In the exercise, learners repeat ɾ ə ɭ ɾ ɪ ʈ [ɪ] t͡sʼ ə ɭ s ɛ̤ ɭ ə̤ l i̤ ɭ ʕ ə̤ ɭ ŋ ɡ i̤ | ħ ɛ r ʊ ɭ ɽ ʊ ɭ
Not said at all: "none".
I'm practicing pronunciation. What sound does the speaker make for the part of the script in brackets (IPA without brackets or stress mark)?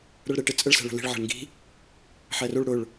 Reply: ɪ